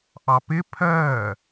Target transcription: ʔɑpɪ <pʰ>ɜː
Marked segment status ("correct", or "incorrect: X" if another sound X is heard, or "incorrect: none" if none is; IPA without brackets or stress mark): correct